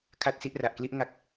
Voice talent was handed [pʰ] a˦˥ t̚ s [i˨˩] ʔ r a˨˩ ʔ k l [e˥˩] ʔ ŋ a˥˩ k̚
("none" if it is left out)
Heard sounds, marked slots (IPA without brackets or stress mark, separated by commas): kʰ, i˦˥, i˥˩